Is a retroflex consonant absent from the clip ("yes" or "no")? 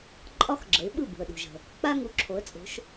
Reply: yes